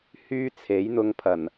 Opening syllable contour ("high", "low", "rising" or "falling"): high